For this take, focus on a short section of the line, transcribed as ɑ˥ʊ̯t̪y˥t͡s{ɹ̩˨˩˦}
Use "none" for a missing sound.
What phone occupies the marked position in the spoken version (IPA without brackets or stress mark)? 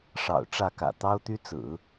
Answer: ɹ̩˨˩˦